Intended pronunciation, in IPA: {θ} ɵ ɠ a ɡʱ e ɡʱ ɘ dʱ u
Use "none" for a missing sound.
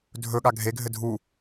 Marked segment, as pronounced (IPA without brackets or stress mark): dʱ